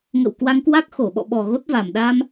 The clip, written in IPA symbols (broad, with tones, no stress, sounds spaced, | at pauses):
ŋ ə̰˧˨ w k w a˧ ŋ k w a˦˥ k̚ x o˧˩ ɓ ɔ̰˧˨ ɓ ɔ˨˩ ɣ o˦˥ t̚ v a˨˩ m ɗ aː˧ m